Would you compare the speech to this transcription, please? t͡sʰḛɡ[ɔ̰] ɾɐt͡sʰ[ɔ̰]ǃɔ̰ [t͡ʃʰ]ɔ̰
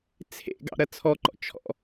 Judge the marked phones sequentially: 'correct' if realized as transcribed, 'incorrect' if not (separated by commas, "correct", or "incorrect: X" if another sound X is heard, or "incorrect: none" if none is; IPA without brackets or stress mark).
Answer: incorrect: ɑ̰, incorrect: ɔ, correct